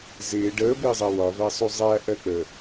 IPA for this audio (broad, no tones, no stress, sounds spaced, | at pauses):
z ɪː ɖ əː b ɪː zˤ ɜ w ɒ v æ sˤ u zˤ æ ʔ ɜ k͡p ə